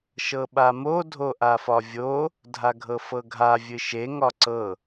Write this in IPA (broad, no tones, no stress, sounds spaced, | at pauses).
ʃ ɤ ɓ a m o dʱ o ʔ a f ɒ vʲ o | dʱ a ɡʱ ɤ f ɤ ɡʱ a vʲ ɨ ʃ e ŋ ɒ ǀ ɤ